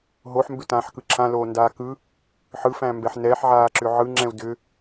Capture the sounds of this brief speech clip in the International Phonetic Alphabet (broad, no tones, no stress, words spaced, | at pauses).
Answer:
ɦoħmbʏtãːħkɯ ǁʰãloːndaː kɯ | ħɯfæ̃mbɛħ nɛːħʕaːǁʏ ʕɯŋ͡ǁɛ̃u̯ dʏ